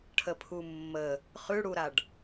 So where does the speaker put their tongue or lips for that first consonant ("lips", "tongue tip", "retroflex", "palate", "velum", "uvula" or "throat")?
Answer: retroflex